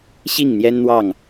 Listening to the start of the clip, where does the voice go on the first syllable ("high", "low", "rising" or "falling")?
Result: falling